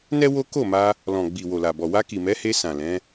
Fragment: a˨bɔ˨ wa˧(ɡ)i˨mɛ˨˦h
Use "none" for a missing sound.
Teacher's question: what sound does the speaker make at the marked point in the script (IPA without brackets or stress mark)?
k